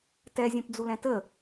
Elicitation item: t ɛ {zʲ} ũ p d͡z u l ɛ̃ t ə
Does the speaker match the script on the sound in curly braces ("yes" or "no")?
yes